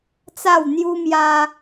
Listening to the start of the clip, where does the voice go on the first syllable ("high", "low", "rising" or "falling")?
falling